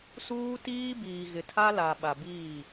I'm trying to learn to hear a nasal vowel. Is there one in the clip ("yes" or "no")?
no